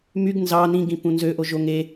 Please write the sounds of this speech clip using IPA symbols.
m y ɡ n z ɑ n ĩ ɡ ĩ p ũ n z ø ʔ o ʒ o ŋ e

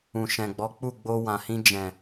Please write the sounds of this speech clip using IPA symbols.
ũ˨ ʃ ɛ̃˨ ɡ͡b ɔ˨˦ k͡p u˦˨ ɡ͡b o˧ w ã˨ h ĩ˧ d͡ʒ ɛ̃˨

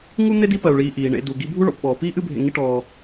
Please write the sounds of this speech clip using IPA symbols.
ŋ u˦ n̪ e˥ d i˦ p ɜ˩ u̯ ɭ iː˨ ʔ iː˩ ɳ ḛ˨ d u˩ ɡ i˦ bʱ u˦ ɭ ɔ̰˩ p ɓ ɔː˩ p iː˥ ʔ ɨ˦ bʱ ḛ˨ ŋ i˦ ʈ ɔː˨

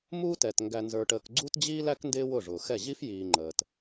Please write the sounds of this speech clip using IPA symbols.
m uː˦ t ɛ˨ t ŋ ɡ æ˨ n z ə˞˨ ʈ əː˨ k ɡ͡ǀ u˦ t d͡ʑ iː˦ l æ˦ k n d ɪː˦ w ʊ˦˨ ʐ ʊː˨ x ɛ˦˨ ʑ i˦ f j iː˨ ŋ͡ǃ əː˨ t

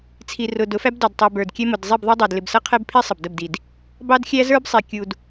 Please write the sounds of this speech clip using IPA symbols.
t͡sʰ i˨ r ʊ˨ d ʊ˨˦ f æ˦ b d ɑ˨ d tˤ i˨ b ə˞˨ d kʲ ɛ˦ m ʊ˨ d zˤ i˦˨ b ðˤ ɛ˦ dˤ æ˨ d l ɪ˨ b s ʌ˦ qʰ ɛ˦ b pʰ i˦ sˤ ə˨ b d ə˦˨ b d i˨ d | b ɑ˦ d xʲ æ˦ z ə˞˦ b sˤ i˨ kʲ u˨ d

